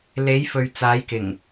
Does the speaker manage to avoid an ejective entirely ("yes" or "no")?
yes